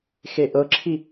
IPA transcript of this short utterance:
x e ʔ ɤ ǁʰ i

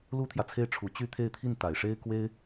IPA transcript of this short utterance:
l u˥ t̪ʰ j ä˨ t͡sʰ e˥˩ ɪ̯ ʈ͡ʂʰ u˧˥ t͡ɕ y˥˧ t̪ʰ e˥˧ ɪ̯ t̪ʰ i˥˩ n t̪ a˨˩ ɪ̯ ʂ e˥ ɪ̯ k w e˥ ɪ̯

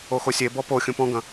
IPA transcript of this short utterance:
o x o sʲ e b ɔ p o xʲ ũ p ɔ̃ ɡ ɐ̃

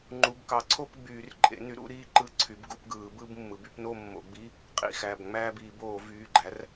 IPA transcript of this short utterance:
ŋ͡ǃ u˩˧˩ b k ɑ˩˥ ǀʰ o˥˧ p ɡ͡b yː˧˩˧ r ǃʼ ḛ˩˥ n y˩˥ ɾ ṵ˥˧ ɾ iː˥˧ ǃ ɯ˧˥˧ ǀʰ y˩˥ b ɡ ṵ˩˥ p ɡ ɯː˧˩˧ b ɯ˥˧ b mː ɯ˩˥ b y˥˧ p n o˥˧ mː o̰˧˩˧ ɡ͡b i˧˥˧ | qʼ ḭ˩˧˩ x æ˩˧˩ b ŋ͡m æː˥˧ b iː˧˩˧ b oː˧˩˧ v yː˩˧˩ ɡ͡ǃ æ˩˥ r

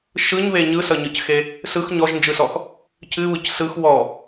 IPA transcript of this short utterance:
ʃ ɯ ɲ β e ɲ ɯ s ʌ ɲ ɯ c x e | s ɯ x ɲ ɔ ʒ n d͡ʒ ɯ s ɔ x | cʰ ɨ β ɯ c s ɯ x w ɔ

